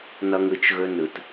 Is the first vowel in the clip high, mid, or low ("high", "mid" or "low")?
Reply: mid